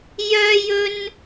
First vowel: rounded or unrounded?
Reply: rounded